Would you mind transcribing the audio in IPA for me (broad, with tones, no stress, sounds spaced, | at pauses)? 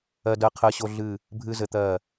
ɜ˧ d ɜ˧ qʰ ɜ˧ ɕ o˧ ɮ ɨ˧˩ | bʱ ɨ˧ z ɘ˩˧ t̪ ɜ˧˩